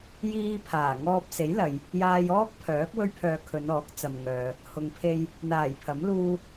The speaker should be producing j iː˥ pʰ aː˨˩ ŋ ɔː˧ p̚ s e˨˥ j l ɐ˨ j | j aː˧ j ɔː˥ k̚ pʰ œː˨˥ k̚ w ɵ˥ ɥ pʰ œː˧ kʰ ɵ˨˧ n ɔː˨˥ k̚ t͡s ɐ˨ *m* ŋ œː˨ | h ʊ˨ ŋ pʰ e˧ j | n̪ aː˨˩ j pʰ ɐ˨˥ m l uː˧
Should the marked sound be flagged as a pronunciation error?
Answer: no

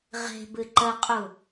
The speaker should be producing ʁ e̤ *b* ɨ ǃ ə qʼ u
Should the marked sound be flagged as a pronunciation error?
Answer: no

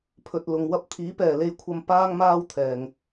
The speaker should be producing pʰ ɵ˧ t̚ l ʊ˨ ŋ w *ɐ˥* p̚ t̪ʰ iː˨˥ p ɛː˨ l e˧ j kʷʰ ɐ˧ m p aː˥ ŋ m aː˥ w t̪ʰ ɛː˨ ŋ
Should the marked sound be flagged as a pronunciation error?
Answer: no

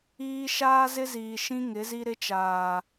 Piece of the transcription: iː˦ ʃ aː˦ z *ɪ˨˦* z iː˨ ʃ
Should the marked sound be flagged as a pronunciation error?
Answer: yes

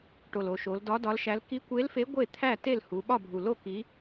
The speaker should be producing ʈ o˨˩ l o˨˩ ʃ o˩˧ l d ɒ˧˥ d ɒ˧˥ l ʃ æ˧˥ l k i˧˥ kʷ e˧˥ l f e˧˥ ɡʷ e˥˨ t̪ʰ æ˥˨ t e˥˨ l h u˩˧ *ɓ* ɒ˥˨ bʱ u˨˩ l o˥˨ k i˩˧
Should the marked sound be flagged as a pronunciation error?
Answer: no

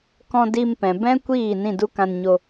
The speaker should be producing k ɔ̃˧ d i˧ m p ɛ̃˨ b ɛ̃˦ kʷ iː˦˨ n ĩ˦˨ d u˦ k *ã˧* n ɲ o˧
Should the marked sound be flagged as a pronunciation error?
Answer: no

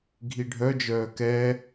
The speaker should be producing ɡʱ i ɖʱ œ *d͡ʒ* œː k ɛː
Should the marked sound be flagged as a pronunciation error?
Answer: no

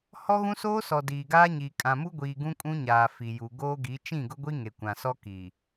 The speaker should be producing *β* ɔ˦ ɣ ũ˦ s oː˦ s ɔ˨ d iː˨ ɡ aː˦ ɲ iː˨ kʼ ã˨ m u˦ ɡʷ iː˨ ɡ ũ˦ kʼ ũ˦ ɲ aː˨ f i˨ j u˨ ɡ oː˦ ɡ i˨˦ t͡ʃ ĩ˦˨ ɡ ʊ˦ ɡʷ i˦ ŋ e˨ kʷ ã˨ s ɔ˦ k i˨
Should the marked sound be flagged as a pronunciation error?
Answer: yes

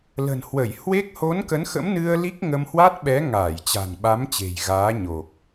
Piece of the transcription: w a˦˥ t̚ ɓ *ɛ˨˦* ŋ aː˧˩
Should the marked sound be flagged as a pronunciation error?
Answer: no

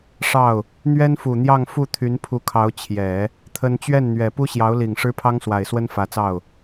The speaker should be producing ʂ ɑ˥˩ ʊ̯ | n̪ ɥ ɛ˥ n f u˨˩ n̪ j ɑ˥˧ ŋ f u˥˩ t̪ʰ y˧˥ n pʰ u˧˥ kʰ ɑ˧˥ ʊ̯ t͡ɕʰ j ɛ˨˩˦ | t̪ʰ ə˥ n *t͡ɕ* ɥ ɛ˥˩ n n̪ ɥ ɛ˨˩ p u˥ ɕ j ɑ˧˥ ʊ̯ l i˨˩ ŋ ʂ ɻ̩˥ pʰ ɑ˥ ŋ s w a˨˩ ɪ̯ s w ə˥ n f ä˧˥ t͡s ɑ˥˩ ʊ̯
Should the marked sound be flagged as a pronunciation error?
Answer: no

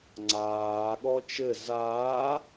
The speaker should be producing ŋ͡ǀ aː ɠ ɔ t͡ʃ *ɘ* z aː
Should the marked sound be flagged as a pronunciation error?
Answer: no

